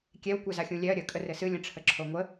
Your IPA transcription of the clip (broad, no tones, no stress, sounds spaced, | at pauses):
kʲ ɛ w kʷ ɛ z a xʲ ũ lʲ ɛ ɐ̯ ɾʲ ə kʼ ə r ɘ s ɨ lʲ ə̃ ʈ͡ʂʰ ə ǁʰ o ŋʷ ə